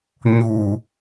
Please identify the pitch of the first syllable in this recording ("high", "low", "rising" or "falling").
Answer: low